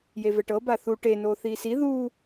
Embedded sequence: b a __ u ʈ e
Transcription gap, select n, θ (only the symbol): θ